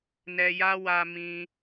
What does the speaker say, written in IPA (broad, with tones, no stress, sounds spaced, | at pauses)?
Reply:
n ɛ˨ j a˧ w a˧ m ĩ˧